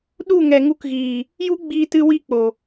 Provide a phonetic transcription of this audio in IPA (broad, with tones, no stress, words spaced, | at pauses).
ɗu˦˨ ŋɛ˨ŋu˧kɣiː˨ | ju˦ɡ͡biː˧tɨ˧ wi˦ k͡po˨